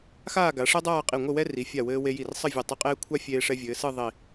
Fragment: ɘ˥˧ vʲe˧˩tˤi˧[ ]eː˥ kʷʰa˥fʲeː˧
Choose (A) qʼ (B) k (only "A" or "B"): A